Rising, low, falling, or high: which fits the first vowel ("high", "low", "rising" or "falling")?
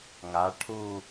rising